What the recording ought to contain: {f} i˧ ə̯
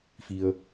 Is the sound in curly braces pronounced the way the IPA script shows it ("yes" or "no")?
yes